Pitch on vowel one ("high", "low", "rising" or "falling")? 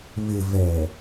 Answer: low